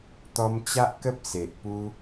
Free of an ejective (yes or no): yes